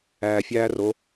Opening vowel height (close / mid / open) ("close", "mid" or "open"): open